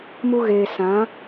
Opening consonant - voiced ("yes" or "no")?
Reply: yes